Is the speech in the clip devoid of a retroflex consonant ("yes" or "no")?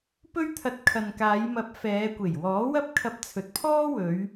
yes